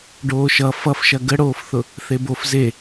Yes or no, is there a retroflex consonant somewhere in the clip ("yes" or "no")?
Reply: yes